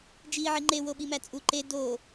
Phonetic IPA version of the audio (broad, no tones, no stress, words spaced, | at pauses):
d͡ʒiːʕiŋ͡ǃe woɓimæt͡sʼu ǃe do